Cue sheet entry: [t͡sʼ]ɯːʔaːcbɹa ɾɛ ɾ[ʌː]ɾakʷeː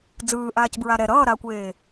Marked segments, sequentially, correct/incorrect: incorrect, correct

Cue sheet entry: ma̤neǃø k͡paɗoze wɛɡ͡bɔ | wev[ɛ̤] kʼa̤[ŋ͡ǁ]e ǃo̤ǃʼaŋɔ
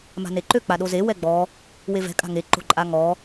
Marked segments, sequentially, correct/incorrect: correct, incorrect

